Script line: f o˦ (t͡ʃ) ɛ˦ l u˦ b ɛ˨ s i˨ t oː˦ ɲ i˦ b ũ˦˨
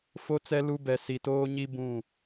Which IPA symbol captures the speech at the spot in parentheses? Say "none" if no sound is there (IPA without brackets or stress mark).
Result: t͡s